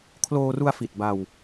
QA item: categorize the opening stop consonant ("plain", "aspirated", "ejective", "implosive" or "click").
aspirated